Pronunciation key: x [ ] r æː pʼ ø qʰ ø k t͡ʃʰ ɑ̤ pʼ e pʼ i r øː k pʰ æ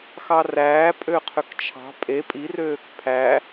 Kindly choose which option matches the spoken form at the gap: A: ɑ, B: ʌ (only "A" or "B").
A